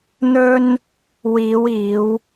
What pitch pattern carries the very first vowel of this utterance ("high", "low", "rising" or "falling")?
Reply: high